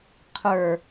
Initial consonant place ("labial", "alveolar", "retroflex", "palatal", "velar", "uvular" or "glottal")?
uvular